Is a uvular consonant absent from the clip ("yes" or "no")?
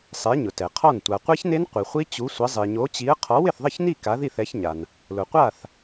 no